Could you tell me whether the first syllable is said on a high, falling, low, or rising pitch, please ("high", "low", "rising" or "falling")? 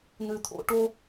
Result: low